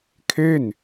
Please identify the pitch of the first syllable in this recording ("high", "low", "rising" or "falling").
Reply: falling